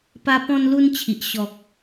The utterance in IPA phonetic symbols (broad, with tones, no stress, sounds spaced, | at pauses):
p a˦ p ɔ̃˦ n l u˦ n t͡ɕʰ i˨ ʔ ɕ ɔ˨ k̚